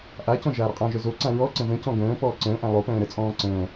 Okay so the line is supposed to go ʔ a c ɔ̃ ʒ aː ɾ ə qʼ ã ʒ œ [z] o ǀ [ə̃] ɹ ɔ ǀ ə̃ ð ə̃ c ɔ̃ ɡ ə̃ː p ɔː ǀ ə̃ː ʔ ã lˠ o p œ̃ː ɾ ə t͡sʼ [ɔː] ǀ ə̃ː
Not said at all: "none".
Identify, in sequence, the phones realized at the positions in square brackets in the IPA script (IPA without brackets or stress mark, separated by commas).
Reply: z, ã, ɔ̃ː